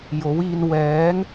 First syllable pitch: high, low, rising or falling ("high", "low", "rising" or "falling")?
rising